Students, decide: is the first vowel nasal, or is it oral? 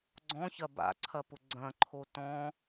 nasal